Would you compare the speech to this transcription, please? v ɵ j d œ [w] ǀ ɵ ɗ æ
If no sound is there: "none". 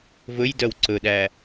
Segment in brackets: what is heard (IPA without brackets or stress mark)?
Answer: w